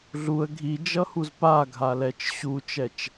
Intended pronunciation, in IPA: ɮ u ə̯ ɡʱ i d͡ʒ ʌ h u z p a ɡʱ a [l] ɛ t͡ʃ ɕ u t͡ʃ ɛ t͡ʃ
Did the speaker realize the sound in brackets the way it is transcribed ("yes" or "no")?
yes